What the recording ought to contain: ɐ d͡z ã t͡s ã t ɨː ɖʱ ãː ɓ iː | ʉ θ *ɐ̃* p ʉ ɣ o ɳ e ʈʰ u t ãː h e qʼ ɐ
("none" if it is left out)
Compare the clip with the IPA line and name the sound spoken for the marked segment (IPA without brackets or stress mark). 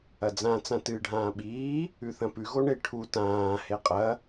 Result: ɐ̃